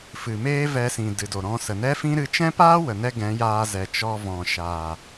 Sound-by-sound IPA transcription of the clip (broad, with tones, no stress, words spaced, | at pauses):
fɨ˨meː˦vɛ˧sĩ˨ dɨ˨do˨ɾɔ̃˧sə˨ nɛ˦fĩ˦ɾɨ˧ t͡ʃɛ̃˦paː˦wə˨nɛ˧ ɡɛ̃˨˦jaː˧ zɛ˨ t͡ʃɔ˧vɔ̃˨ʃaː˨